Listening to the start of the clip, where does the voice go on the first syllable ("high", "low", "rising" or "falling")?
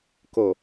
low